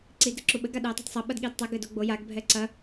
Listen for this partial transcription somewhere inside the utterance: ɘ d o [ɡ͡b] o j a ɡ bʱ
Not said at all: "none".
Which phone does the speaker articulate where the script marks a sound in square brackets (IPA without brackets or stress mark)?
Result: ɡ͡b